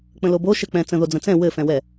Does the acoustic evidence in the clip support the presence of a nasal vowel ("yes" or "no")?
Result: yes